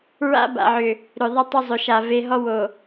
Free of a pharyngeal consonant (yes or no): no